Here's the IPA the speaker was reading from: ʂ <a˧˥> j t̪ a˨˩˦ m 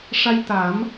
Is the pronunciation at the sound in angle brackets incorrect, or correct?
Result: incorrect